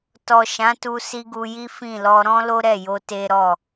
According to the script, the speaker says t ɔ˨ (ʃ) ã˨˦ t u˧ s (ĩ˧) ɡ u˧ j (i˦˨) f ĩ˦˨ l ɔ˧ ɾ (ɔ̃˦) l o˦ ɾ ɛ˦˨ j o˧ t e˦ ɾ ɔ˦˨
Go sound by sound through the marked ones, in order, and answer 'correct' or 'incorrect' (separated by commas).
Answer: correct, incorrect, incorrect, correct